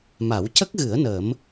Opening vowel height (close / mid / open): open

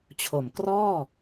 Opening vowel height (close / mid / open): mid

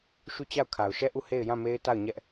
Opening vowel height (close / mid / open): close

